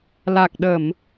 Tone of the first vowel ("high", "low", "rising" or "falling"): low